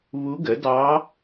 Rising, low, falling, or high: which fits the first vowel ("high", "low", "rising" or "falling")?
rising